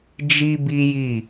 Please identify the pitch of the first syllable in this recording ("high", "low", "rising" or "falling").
high